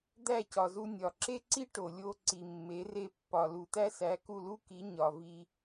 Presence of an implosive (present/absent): absent